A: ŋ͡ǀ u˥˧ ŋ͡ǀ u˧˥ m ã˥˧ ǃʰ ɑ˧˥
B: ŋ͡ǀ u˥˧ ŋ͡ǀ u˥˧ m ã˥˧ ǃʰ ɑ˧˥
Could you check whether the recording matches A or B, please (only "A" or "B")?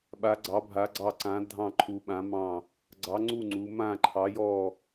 A